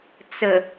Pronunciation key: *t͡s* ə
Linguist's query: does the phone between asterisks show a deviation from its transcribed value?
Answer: no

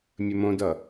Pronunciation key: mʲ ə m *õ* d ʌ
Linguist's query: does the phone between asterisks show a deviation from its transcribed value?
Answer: no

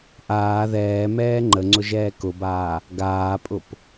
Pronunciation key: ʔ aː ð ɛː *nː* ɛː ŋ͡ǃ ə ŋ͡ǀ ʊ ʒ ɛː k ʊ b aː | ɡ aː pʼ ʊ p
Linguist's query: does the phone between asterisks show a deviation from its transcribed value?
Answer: yes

